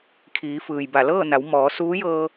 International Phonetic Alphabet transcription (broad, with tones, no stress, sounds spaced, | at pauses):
kʰ iː˩˧ f ɯː˩ j b a˧˩ l ɤː˥˨ n a˩˧ w m ɔː˩˧ s uː˧˥ j ɤː˧